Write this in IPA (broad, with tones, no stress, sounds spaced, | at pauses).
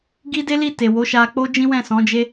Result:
ɡ i˦ d e˦ l i˦˨ t e˨ w o˨˦ ʃ a˧ k͡p o˦ d͡ʒ ĩ˦ w ɛ̃˦˨ s ɔ̃˨˦ d͡ʒ e˦